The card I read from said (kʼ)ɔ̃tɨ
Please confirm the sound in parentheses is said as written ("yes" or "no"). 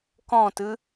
no